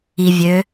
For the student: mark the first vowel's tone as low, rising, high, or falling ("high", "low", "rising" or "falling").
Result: low